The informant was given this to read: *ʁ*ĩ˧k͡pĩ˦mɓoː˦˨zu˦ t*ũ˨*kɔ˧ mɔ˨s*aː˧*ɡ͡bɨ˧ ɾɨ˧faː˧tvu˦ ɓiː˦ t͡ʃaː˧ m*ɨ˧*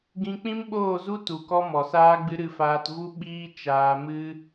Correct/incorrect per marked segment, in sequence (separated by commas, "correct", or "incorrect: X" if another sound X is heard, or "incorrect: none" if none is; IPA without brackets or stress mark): incorrect: ɡ, incorrect: u˨, correct, correct